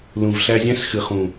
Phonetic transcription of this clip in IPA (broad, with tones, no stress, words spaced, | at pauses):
lũ˨vɬæ˧zʲæ̃˦s xɨ˨χũ˨